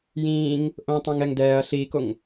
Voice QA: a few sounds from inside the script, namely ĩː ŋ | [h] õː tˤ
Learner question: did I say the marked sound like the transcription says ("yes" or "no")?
no